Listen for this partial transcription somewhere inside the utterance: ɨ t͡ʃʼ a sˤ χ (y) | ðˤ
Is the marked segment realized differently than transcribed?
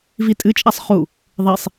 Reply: yes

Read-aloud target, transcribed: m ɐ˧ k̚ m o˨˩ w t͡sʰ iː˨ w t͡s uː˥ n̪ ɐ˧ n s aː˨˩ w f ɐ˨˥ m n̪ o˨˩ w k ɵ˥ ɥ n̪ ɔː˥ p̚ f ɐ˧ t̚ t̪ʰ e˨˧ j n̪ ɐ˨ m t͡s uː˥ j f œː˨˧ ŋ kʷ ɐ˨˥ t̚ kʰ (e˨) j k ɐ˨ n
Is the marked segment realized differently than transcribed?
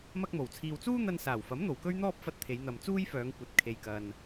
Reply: no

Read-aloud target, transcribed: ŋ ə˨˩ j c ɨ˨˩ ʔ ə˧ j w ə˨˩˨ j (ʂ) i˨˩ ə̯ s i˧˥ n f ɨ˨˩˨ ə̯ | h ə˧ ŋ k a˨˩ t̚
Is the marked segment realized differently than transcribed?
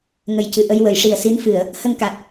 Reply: no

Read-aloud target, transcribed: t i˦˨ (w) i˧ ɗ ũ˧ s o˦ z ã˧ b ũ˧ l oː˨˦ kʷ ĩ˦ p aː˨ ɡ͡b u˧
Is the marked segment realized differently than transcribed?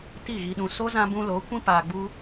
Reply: yes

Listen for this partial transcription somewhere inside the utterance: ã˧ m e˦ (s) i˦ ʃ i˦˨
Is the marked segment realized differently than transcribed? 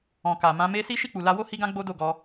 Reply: no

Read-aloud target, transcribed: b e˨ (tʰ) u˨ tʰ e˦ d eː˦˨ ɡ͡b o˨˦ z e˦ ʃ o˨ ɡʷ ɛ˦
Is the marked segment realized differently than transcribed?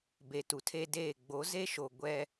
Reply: yes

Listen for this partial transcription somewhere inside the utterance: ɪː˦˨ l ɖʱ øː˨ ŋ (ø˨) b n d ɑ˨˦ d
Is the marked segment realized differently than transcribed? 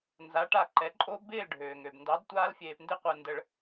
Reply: no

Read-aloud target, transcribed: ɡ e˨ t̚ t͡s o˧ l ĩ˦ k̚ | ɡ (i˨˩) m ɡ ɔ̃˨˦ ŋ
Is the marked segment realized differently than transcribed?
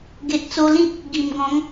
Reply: no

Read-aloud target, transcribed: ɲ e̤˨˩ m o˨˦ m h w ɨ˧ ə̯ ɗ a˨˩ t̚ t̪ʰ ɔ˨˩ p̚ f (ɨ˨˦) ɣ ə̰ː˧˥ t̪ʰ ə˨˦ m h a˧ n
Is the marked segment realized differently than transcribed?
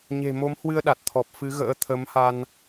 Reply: no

